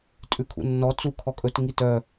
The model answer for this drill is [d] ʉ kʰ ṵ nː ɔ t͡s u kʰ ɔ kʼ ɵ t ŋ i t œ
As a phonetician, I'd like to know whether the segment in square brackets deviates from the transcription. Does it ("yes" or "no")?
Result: yes